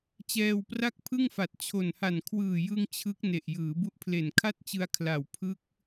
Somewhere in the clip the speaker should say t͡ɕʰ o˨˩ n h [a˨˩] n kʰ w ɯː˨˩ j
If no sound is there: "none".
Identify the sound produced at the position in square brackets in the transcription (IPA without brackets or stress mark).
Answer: a˨˩